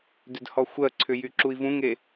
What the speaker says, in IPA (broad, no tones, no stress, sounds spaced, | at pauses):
d ʏ d h ɔ xʷ ɜ ǀʰ ʏ j y ǁ u i̯ v ũ ŋ e